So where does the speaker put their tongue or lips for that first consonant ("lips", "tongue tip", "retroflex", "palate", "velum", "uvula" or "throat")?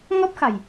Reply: velum